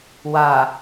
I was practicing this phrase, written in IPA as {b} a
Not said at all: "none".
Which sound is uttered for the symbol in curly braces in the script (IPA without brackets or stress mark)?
w